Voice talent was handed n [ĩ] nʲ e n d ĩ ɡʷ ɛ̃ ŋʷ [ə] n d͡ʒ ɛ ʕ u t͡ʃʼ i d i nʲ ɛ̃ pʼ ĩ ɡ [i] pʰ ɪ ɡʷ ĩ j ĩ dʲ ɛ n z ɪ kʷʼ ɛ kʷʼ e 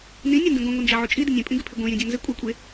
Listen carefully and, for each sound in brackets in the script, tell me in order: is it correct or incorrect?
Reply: correct, incorrect, incorrect

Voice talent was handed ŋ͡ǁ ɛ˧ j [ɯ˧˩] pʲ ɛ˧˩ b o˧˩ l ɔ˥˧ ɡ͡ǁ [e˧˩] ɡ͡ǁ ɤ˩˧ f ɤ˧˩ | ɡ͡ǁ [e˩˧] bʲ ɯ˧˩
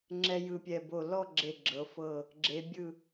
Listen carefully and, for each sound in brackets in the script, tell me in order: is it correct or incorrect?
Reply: correct, correct, correct

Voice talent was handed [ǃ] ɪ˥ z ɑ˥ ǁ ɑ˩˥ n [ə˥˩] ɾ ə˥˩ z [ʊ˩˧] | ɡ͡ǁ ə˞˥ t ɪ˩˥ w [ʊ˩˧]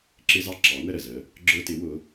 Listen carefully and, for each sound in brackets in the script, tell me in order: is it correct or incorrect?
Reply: incorrect, correct, incorrect, correct

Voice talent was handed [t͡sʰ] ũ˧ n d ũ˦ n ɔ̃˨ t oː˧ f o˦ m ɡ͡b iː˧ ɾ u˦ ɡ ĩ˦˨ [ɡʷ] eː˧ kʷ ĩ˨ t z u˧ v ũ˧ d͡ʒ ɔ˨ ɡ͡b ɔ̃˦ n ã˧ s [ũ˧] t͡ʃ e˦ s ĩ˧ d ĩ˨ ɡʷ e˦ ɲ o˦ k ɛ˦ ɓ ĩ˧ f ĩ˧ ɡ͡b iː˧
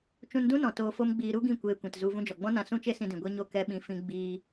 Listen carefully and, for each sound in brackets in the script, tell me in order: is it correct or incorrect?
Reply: incorrect, incorrect, incorrect

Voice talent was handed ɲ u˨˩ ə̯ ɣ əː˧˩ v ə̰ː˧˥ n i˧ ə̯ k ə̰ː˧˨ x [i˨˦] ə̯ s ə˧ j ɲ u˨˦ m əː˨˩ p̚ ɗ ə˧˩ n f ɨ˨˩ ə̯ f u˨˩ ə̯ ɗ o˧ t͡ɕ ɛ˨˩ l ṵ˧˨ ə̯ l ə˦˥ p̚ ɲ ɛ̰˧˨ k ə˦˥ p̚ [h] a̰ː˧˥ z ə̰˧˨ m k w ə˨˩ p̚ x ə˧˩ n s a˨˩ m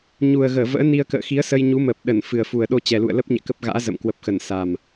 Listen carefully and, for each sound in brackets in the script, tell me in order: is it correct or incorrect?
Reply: correct, incorrect

